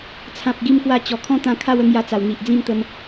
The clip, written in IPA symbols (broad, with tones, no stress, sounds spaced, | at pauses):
t͡sʰ ã˨ p̚ ɡ i˧ m k w a˧ t͡ɕ ɔ˨˩ kʰ ɔ̃˦ t̪ ã˧ kʰ a˥˧ w ə˧ ŋ j a˧ t͡s a˨˩ w n̪ i˨ ʔ d͡z ĩ˥˧ m t̪ ə˧ m